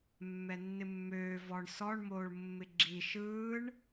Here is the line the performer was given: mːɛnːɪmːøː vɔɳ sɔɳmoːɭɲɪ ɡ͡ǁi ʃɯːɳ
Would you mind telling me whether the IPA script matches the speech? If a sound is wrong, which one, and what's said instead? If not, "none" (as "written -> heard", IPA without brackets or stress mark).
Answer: ɲ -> mː